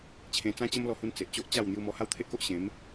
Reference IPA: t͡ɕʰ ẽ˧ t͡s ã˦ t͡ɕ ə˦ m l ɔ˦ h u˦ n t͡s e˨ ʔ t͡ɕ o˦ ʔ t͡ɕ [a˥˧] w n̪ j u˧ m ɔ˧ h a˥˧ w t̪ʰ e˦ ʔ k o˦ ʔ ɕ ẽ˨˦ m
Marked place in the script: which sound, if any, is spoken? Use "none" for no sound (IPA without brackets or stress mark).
a˥˧